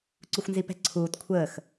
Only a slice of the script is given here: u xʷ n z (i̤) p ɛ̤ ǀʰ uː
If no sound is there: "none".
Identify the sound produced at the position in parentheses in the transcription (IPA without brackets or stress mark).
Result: i